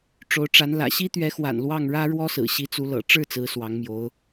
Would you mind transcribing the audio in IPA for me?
ʈ͡ʂo˧˥ʊ̯ʈ͡ʂa˧˥n lä̰˨˩ɕi˥t̪ɥɛ˧˥xwa̰˨˩n lwɑ˥˩ŋɻä˥ ɻwɔ˥sɹ̩˨˩ ɕi˧˥t͡su˧˥lɤ̰˨˩ ʈ͡ʂɻ̩˥˩ t͡sɹ̩˧˥swɑ˧˥ŋmjo˧˥ʊ̯

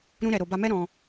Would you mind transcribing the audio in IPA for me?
ɾũ˦ɾɛ˧ ɾo˨ba˧mɛ˦ ɾɔ̃˧

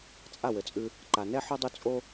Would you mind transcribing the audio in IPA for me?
t͡sʼa˦˨wɘ˨t͡sʼʉ˧ | ǃa˨nɛ˦ħo˦dˤu˧ t͡sʼo˦

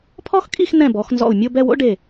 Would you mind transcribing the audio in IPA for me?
pʰɔ˥xkʼi˥˧x n̪ɛ̃˧˩ bɔ˩˧xnzɔ̰˧˩u̯ mʲo˥˧bɛ˥˧wo̰˥ɖe˧˩

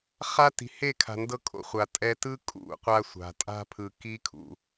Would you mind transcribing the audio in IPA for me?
χa˦ti̤˨ he˦˨kʰa̤˨ndɤ˦ kʼo̰˨χʷa˨ tʼɛ˦ tɯ˦ kʼṵ˨˦qʷa˦sʷa̤˨ tʼa̤˦pʰɯ˨ki˦kʰṵ˨

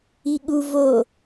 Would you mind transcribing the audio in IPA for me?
iɠu vo

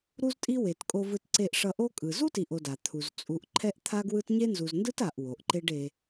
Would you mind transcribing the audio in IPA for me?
ɾu˦ztʼi˦we˩t kʼo˨vɯ˨tǀe˨ʔʂʌ˨ ʔo˥kʼɯ˩ zu˥ti˨ʔo˨da˩ t̪ʰu˩z t͡sʼu˨ʔ ǃʰɛ˦ʔt̪ʰa˦ɡwɯ˦t ɲe˥nzu˨z ndɯ˥ta˨ʔ wo˩ʔǃe˦ɖ e˨

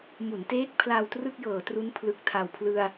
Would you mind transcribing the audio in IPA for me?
mu˩˦nteː˦˥k̚ pʰlaː˧wtrɯ˥˩k̚jɤː˩˦tru˦˥n pʰlɯ˨˩k̚tʰa˨˩wpʰlɯ˧a̯

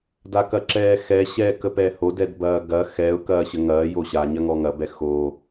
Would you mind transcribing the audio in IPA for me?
dakɐǁɛːxɛ ɕɛːkəpɛho dɛdbɐːɡɐ xɛʊ̯ kɐːɕəŋɐː joɕa ɲɐŋɔŋɐ bɛxo

